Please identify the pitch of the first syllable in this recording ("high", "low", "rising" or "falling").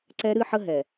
high